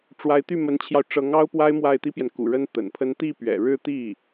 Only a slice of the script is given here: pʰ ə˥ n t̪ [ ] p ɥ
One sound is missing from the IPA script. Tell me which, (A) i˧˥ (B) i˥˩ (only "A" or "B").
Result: B